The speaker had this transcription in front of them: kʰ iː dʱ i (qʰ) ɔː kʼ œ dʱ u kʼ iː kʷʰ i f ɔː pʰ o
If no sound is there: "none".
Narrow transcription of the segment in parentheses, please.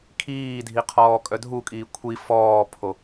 qʰ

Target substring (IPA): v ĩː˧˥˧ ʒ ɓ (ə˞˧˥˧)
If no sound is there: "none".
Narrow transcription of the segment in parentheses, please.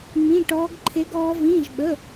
ə˧˥˧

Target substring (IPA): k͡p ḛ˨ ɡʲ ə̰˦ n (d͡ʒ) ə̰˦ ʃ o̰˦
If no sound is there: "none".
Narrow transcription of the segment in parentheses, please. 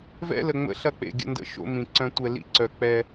d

